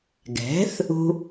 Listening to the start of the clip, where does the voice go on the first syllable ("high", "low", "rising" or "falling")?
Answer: rising